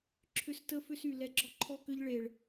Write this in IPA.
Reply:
ǁʰʏ˧stə˧ fʏ˦sy˨ lɛ˧ɡ͡ǁɔ˦ǃʰɔ˦kʏ˦ʎ ɭe˨ɭ

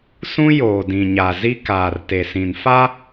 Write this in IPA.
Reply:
sũ˦joː˨ dĩ˨ɲa˨ zi˦ kaː˨rte˨sĩ˨n fa˦

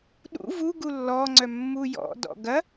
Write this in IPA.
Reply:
ɗṵ vuɡu lːɔŋ͡ǀœ mːujɔ̰dɔ̰ ɡɐ

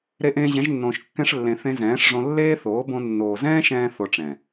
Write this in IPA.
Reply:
ɾe˧ʔẽː˧ʑɛ̃˨˦ʒnːõː˨ʃ kːɛ̃˧ʂlːẽ˨ θẽ˧zɛ̃ː˨˦ʂʐõ˧ lːeː˦θoː˨˦bõ˧ nːoː˨zɛ̃ː˦ʃɛ̃ː˧ θo˧ʈ͡ʂɛ̃˨

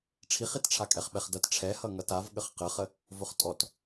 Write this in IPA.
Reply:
ʈ͡ʂʰiχitʈ͡ʂʰakʼɛχ ɓɛχdʌt ʈ͡ʂʰɛhʌ ŋʌtav ɠəχqəχə | vʊχtʼɔt

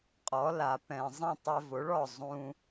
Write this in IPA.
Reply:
qʼɔ˩˥ la˩pɛ̃˩ zˤĩ˥˩tˤɛ˧vo˩˥ɭɔ˥˩ zˤũ˧

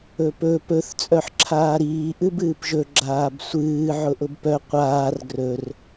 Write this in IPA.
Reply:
ɵpɵ pɵθ t͡sʼœħǁʰaːɾiː ʔɨbɨːpʒɵ ɡ͡ǁaːbsʷɨː ʕʊʔʊbpœ qʷaːr ɡrɵr

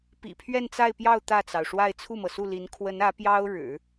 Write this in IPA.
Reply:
pḭ˨˩pʰɥɛ˥˧nt͡sa˥˧ɪ̯pjɑ˥˧ʊ̯ t̪ä˥˩t͡sɑ˩ʊ̯ʂwa˥˧ɪ̯ t͡sʰu˥˩mɤ˩su˥˩li˧˥n kʰwə˧˥nä˧˥ pjɑ˥ʊ̯ɻɻ̩˨˩˦

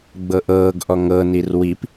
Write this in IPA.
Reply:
ɡ͡bɤʔɤːɡʔɔ ŋɤnir wip

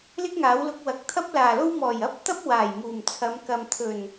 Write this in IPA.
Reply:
lɪ˥k̚ŋaː˨˥wlʊ˧k̚wɐ˨˥k̚ t̪ʰɐ˥p̚laː˨˩lo˥w mɔː˨˩jɐ˥p̚ t̪ɐ˥p̚ waː˨˩jmuː˨˩mt͡sʰɐ˨˧mkɐ˨m t̪ʰɵ˨˩n

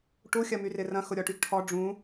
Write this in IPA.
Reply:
ʈu xʲɐmyrɪrɐ̃ xʊɾʲɔʈyɡʈʰɔ ɖ͡ʐũ

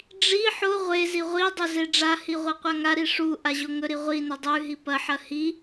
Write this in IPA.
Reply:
ɖ͡ʐi ħo ʁʷezi ʁʷidˤo zeɖ͡ʐahi ʁʷɐqʷaŋaɾi ʂu ʔaʑoŋɵɾi ʁʷinɵ dˤʉɦi pɐħɐ hi

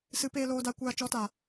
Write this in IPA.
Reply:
sɨ˨˦peː˧loː˧da˧ kʷaː˧t͡ʃɔ˨˦ta˨

